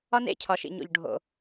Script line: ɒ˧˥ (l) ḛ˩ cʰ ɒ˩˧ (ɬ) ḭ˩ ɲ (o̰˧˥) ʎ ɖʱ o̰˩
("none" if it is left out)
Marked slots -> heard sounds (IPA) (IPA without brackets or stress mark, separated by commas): n, ʃ, o̰˩